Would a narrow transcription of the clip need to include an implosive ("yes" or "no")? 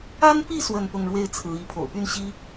no